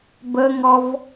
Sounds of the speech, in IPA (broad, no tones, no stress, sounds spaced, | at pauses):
b ə ŋ ɔ v